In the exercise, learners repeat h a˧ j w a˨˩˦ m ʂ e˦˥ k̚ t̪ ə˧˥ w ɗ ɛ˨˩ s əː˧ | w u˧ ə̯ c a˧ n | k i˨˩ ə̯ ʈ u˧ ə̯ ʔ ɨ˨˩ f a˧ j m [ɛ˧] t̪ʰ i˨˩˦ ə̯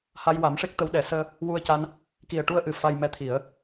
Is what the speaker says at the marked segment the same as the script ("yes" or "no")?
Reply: yes